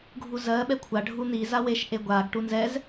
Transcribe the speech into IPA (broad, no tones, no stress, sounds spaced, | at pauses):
ɡʱ u z ɜ ɓ ɛ kʷʰ a ɖʱ u n̪ i z a w e ʃ ʔ e ɡʷ a ɡ ʈ u n z ɛ z